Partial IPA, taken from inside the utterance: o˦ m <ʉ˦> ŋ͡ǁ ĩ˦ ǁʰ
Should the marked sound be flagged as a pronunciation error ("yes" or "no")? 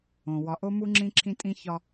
yes